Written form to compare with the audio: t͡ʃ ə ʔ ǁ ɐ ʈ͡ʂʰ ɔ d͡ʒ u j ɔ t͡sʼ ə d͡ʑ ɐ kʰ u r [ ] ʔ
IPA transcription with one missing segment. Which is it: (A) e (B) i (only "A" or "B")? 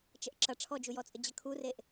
A